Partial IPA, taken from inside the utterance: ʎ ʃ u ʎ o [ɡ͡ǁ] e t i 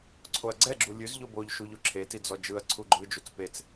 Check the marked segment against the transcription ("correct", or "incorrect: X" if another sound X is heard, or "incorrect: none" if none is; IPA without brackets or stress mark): incorrect: ǁʰ